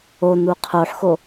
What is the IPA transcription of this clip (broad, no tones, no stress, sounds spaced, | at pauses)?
o n u qʰ o ħ x o